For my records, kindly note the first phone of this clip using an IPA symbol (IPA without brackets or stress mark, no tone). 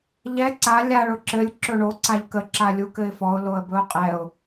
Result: ʎ